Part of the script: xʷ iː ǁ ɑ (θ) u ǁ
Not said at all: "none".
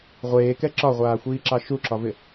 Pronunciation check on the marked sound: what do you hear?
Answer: ʃ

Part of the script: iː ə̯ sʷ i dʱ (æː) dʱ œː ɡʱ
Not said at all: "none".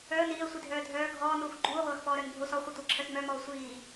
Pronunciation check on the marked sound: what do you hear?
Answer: œː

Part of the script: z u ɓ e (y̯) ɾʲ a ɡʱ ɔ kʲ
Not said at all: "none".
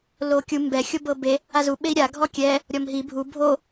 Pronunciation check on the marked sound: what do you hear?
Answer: i̯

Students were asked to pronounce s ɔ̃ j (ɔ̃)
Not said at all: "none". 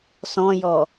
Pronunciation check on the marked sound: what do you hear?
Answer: ɔ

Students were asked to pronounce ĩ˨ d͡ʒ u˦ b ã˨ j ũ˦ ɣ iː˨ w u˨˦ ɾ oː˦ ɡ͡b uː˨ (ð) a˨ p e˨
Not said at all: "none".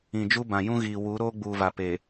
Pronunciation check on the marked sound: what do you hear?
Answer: v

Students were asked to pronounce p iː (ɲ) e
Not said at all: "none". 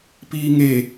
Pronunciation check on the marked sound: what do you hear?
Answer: ŋ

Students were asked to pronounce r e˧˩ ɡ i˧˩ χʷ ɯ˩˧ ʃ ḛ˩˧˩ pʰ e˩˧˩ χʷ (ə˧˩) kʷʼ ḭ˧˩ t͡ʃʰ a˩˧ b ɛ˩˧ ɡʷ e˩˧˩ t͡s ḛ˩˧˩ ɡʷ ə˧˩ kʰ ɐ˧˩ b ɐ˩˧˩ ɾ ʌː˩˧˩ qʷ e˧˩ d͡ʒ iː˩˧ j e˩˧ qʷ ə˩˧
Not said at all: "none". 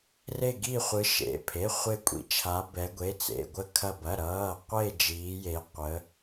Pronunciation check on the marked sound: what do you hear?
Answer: ɪ˧˩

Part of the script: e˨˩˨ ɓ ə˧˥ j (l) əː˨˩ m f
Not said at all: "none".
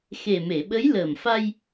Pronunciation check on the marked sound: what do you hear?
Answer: l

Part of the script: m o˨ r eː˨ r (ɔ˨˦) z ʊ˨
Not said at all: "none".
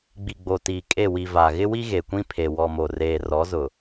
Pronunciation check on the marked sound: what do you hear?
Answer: ɔ˨˦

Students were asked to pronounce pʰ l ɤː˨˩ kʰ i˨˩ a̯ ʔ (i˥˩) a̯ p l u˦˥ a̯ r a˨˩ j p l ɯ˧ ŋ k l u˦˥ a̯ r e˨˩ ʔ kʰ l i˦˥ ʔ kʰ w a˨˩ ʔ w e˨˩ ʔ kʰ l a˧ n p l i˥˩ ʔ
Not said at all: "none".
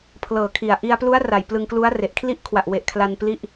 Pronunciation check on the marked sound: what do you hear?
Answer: i˧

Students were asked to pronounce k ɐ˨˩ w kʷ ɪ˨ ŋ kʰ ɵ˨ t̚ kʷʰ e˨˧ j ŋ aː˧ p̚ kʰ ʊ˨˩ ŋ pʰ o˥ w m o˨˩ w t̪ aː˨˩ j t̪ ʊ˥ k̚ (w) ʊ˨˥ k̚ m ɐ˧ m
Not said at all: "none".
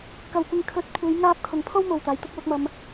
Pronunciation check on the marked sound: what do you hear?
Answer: w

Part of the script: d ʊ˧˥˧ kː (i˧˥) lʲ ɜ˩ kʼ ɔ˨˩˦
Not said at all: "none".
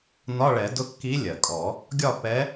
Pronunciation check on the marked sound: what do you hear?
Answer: i˧˥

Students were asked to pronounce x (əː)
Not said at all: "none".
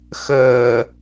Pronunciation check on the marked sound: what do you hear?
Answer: əː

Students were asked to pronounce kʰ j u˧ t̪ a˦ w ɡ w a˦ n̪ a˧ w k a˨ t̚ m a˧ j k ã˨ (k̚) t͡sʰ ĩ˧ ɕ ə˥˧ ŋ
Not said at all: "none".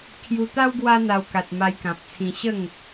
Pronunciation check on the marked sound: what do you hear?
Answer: p̚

